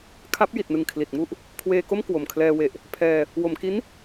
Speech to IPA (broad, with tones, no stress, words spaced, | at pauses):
kʰa˦˥p̚ji˨˩t̚nɯ˨˩ŋ kʰli˨˩t̚ŋu˥˩ʔ | kʰweː˧ko˥˩m kwo˨˩mkʰlɛː˧we˨˩ʔ | pʰɛː˧ | wo˩˦mki˦˥n